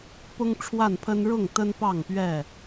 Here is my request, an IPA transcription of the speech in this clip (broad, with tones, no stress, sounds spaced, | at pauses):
p ʊ˦ ŋ ʈ͡ʂʰ w a˥˨ n pʰ ə˦ n ɻ ʊ˥˨ ŋ t̪ ə˦ n p ɑ˥˨ ŋ p ɥ ɛ˥˨